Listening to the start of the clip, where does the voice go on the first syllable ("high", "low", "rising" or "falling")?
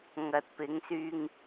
low